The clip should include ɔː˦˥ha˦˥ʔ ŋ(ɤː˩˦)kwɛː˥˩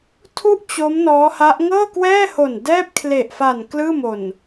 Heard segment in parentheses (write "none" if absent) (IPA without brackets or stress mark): ɤː˥˩